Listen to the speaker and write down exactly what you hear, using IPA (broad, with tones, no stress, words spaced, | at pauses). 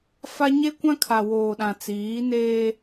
fa˦ ɲe˦kʷã˦ kʰa˨ woː˨ɗã˨t͡siː˨˦neː˦